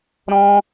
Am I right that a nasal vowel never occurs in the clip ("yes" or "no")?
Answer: no